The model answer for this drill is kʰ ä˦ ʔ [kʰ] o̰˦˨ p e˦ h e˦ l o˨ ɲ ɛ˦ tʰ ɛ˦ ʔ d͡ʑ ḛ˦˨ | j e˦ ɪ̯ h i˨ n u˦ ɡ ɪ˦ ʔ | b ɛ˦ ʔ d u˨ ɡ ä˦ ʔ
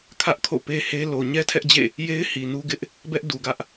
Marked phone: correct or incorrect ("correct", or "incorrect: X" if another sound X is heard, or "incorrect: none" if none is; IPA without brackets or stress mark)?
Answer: correct